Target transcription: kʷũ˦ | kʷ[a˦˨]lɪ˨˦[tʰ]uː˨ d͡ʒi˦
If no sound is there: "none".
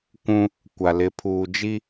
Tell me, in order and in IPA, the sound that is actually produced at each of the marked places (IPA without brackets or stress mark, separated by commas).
a˨, pʰ